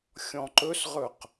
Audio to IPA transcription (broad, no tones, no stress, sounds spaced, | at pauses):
xʲ ɔ̃ ǃ ɵ s ʁ ɵ q